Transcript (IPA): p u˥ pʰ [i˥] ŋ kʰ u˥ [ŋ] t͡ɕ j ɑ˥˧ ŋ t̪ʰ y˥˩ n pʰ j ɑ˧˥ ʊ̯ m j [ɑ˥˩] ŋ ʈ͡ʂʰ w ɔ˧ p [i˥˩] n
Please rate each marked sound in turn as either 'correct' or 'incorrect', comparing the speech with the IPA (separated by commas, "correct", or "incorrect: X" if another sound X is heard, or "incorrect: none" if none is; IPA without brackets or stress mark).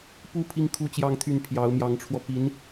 correct, incorrect: none, incorrect: ɑ˧˥, incorrect: i˧˥